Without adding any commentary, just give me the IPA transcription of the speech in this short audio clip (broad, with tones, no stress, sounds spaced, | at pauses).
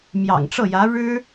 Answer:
m j ɑ̰˨˩ ŋ ʈ͡ʂ ɤ˥˩ j ä˧˥ ɻ ɻ̩˥